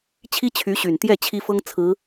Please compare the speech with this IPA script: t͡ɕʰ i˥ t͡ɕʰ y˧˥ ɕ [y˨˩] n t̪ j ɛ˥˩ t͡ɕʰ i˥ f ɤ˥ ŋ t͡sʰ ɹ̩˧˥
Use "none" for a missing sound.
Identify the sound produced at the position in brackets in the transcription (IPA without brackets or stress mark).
y˨˩